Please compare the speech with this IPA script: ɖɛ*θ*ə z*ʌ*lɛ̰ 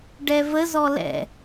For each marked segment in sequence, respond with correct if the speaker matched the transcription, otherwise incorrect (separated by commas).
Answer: incorrect, incorrect